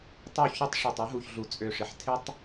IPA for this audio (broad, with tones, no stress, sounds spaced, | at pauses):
tˤ u˦˨ ç ʏ˦ tˤ ʂ u˨ tˤ u˦ ɦ u˨ ç ɮ u˨ t͡sʼ ø˨ ʂ ɪ˨ ħ tʰ ɪ˦ tˤ